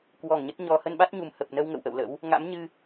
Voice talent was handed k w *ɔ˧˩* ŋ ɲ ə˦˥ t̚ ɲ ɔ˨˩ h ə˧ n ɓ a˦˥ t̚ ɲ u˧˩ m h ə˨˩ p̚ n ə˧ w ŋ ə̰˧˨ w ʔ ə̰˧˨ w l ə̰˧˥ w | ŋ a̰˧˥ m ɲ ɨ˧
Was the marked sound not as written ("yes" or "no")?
no